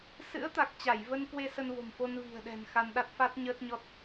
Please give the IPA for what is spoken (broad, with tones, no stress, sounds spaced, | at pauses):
s ɨ̰˧˥ ə̯ t̪ a˨˩ k̚ t͡ɕ a˧˩ j v ə˧ n k w e˧ s ə˧ n v o̤˨˩ m f o˧ n v i̤˨˩ ə̯ ɗ ɛ̤˨˩ n x a˧ n ɗ a˦˥ t̚ f a˦˥ t̚ ɲ əː˦˥ t̚ ɲ ɔ˦˥ t̚